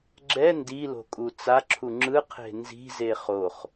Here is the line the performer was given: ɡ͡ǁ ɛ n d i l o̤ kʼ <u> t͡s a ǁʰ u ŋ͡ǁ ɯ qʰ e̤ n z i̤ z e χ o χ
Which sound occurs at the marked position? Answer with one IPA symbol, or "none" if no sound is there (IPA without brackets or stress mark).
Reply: u